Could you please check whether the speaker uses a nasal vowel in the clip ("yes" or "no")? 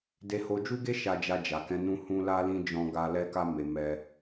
yes